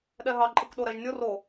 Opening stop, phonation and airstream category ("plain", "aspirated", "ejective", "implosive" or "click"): implosive